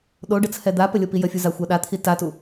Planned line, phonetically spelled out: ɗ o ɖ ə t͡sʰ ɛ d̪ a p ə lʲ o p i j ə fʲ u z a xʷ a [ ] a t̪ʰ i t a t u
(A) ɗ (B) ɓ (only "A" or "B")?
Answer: A